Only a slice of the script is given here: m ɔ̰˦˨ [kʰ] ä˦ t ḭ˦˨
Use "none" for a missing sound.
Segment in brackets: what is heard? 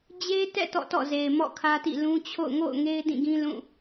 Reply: kʰ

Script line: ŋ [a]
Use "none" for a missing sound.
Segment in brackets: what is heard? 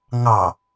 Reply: ɑ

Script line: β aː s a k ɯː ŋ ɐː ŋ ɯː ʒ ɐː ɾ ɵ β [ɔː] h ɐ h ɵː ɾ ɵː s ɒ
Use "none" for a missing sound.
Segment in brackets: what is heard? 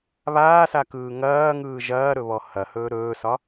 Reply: ɔ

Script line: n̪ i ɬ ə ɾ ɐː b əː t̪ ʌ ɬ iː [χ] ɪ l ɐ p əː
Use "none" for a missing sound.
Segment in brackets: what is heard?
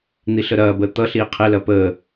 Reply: qʰ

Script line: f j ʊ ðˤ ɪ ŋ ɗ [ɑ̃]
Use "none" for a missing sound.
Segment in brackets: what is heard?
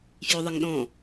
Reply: ɔ̃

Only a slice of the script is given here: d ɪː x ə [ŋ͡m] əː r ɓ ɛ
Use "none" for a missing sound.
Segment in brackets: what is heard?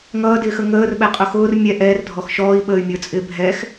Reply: ŋ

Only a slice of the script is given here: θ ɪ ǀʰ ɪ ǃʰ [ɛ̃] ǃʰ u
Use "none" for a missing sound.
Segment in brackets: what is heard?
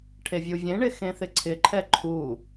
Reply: ɛ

